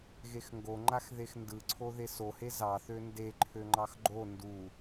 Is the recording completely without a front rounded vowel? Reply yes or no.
no